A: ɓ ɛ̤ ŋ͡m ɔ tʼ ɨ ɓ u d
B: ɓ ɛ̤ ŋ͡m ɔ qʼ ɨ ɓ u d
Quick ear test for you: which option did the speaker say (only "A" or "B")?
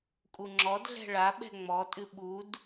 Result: A